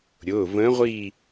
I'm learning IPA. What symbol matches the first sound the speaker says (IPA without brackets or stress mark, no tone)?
ɾʲ